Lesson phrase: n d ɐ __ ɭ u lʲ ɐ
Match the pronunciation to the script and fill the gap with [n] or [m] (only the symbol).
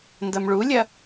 m